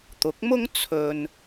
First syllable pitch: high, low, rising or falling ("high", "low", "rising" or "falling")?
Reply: rising